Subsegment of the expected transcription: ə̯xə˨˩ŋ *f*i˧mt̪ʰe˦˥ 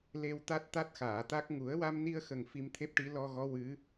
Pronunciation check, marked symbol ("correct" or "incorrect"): correct